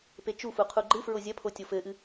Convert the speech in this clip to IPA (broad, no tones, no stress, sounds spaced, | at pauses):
p e t͡ʃ u f u qʰ u ɡ͡ǃ ɨ f ɹ o zʲ ɐ pʰ o tʲ o f ɘ ʔ ɨ